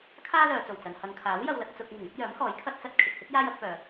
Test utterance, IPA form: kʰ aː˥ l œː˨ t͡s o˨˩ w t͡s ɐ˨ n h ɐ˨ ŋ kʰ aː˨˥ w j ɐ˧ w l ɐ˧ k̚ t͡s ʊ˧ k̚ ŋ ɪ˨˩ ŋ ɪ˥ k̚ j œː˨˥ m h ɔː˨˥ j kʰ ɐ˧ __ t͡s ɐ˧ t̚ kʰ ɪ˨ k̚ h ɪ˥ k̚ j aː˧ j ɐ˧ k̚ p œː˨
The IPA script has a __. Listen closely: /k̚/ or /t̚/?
t̚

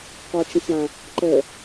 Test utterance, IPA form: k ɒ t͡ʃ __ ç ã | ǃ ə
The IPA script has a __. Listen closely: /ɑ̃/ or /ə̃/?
ə̃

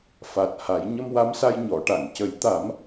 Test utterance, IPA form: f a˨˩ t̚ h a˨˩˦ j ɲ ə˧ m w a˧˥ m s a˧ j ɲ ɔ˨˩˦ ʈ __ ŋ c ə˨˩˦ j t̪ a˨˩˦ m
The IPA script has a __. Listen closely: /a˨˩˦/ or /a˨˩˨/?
a˨˩˨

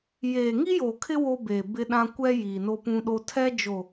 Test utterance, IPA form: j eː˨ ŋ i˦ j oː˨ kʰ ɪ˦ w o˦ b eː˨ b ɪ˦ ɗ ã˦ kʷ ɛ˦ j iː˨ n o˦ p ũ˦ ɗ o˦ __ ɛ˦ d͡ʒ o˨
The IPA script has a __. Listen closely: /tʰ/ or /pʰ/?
tʰ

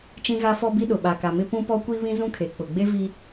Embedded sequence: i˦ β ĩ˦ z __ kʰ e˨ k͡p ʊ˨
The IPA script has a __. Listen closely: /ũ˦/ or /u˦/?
ũ˦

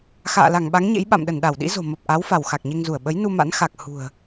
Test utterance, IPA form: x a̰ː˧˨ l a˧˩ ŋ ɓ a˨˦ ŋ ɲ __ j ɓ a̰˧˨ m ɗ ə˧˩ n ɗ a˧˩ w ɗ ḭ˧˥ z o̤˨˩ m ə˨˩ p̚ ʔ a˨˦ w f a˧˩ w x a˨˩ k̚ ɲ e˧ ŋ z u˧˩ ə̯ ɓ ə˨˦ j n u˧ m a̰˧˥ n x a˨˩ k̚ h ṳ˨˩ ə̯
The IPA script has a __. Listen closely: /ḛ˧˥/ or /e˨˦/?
ḛ˧˥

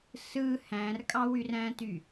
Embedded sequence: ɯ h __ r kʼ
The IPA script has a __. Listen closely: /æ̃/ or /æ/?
æ̃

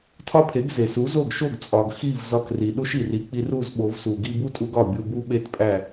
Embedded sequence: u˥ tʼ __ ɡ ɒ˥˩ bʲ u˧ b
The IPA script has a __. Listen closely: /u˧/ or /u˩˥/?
u˧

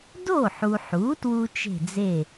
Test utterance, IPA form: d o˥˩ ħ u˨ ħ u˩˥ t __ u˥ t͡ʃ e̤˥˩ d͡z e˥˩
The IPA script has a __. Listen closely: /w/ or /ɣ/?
w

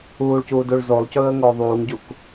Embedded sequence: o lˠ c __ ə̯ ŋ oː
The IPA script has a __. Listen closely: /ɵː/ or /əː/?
ɵː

